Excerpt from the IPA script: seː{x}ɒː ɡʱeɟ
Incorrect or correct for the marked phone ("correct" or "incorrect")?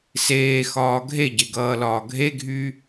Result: correct